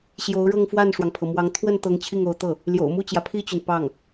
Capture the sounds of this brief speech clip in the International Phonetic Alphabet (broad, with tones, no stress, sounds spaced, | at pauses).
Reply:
ɕ j o˧˥ ʊ̯ ɻ ɤ˥˧ ŋ f w a˥˩ n ʂ w ɑ˩ ŋ pʰ ɤ˩ m w ɑ˧˥ ŋ t̪ʰ w ə˥˩ n t̪ ɤ˧˥ ŋ t͡ɕʰ i˥˩ ŋ o˧˥ ʊ̯ t̪ ɤ˥˩ | l j o̰˨˩ ʊ̯ m u˥˩ t͡ɕ j ä˩ pʰ i˥˩ t͡ɕ y˩ n p ɑ˥˩ ŋ